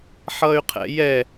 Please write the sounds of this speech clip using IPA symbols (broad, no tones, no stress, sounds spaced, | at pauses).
ħ ʌ y̯ qʰ ɛ̰ j ɛ